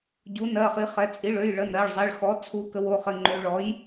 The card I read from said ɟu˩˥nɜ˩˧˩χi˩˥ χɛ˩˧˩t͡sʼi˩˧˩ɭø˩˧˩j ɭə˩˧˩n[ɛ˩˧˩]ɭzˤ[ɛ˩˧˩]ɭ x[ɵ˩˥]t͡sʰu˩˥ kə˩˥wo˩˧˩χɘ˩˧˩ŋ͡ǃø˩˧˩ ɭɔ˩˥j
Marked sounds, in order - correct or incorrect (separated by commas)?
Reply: incorrect, correct, incorrect